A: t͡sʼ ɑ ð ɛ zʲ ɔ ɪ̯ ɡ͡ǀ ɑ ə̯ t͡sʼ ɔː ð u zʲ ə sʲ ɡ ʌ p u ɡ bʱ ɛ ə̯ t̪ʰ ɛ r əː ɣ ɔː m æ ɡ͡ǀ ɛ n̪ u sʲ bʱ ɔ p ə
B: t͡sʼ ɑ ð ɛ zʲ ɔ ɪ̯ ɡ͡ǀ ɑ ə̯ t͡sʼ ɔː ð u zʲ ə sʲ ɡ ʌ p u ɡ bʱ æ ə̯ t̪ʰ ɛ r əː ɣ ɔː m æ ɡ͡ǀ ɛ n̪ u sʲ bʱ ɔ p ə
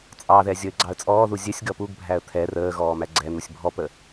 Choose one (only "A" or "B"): B